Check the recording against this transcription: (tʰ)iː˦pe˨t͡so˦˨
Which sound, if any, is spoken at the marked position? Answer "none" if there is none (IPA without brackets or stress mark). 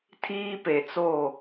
tʰ